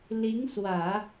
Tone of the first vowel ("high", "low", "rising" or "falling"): rising